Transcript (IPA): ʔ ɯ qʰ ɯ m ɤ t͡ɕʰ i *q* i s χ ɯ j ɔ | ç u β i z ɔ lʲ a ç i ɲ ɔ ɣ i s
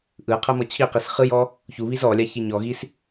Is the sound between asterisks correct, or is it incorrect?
correct